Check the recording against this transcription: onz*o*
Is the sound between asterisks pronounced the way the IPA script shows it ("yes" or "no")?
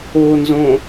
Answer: no